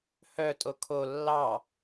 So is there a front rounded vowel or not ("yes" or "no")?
yes